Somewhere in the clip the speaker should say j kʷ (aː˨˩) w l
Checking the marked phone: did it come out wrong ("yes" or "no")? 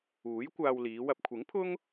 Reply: yes